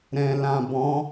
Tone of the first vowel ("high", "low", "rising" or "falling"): low